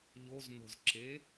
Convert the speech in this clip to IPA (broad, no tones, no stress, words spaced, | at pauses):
ʎozno̤zǁe